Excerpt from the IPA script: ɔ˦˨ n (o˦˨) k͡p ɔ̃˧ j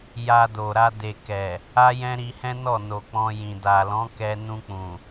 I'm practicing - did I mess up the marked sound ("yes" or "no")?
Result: yes